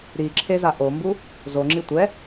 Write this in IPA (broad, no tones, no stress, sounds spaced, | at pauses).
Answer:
ɾ i ǁʰ e z a ʔ o m b u | z o ŋ͡ǁ i tʷ ɛ